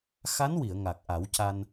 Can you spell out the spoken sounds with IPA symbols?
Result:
x a˧˥ n w i˨˩˨ ə̯ ŋ a˨˩ k̚ ʔ a˨˩˦ w c a˧ n

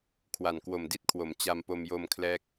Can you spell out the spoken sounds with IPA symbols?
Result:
kʰ w a˨˩ n k w o˨˩ m d i˥˩ t̚ kʰ w o˩˦ m t͡ɕ a˧ m p o˧ m j o˧ m kʰ l ɛː˦˥ k̚

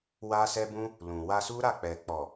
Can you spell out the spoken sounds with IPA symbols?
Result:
w a˦ s ɛ˦ b ũ˦ | l ũ˨ w a˧ s u˦ ɾ a˦˨ k͡p ɛ˨ k͡p ɔ˨

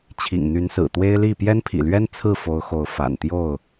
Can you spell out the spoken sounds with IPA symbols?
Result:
t͡ɕʰ ḭ˨˩ ŋ n̪ y˨˦ n s ɹ̩˨˩ t̪ w e˦ ɪ̯ l i˥˨ p j ɛ˦ n pʰ ḭ˨˩ l ɥ ɛ˦ n t͡sʰ ɹ̩˥˨ f o˨˦ ʊ̯ x o˨˦ ʊ̯ f a̰˨˩ n t̪ j o˥˨ ʊ̯

